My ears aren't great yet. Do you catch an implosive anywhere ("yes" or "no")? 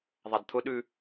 yes